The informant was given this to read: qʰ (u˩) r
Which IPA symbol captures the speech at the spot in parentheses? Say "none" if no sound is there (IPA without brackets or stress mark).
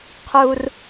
u˩